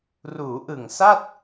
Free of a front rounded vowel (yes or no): yes